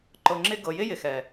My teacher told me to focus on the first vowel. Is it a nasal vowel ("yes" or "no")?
no